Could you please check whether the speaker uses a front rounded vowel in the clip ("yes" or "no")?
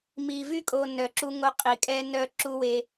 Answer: yes